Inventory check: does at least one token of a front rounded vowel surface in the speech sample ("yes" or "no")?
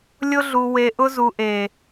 no